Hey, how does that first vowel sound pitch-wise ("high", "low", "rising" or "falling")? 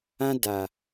high